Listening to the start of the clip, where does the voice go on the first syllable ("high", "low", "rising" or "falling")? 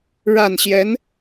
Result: falling